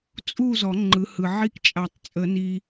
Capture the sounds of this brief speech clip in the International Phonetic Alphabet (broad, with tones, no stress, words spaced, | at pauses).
t͡sʼu˥˧ zɔ˨˩˦ ŋ͡ǃɯ˨˦hɯ˨ ʕi˥˧kt͡ʃʼa˨˩˦tˤ t͡sʼə˨˩˦ni˨